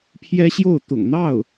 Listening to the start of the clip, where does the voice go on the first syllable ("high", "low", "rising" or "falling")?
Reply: high